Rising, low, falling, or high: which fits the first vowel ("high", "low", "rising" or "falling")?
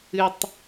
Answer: high